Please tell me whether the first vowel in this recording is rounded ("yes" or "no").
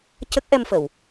no